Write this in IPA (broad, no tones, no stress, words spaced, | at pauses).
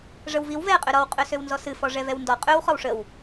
ʐəwviw vɛ qʼøɾɔw qʼøsøwnzɔsɨ fɔʐɛvɛwndɔ qʼøw χɔwʂəw